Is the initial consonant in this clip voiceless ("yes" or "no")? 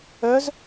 no